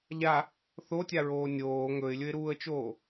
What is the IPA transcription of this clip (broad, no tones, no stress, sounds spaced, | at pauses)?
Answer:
ʎ a | θ o tʲ a ɹ oː nʲ oː ŋ ɵ ɪ̯ lʲ ɵ ɪ̯ ɾ uː ə̯ t͡ʃ oː